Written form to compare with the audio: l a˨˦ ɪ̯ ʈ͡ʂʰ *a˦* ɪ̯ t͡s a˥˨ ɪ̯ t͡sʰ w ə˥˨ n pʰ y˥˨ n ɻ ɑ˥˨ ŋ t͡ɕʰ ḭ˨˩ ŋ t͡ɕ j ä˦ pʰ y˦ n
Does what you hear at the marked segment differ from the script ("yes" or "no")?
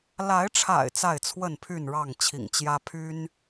yes